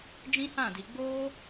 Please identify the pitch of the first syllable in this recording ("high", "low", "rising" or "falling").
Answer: high